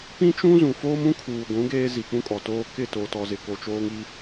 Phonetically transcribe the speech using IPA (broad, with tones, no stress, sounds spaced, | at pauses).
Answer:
p ĩ˦ t͡ʃ ũ˦ z ũ˨ f oː˦ m ũ˦ kʰ uː˨ ɡʷ ũ˨˦ ɡ eː˦ z i˨ k͡p ũ˦ kʼ ɔ˨ t oː˦ k ɪ˦˨ t o˨ t ɔ˨ z ɪ˨ k o˨ t͡ʃ oː˦ ŋ i˦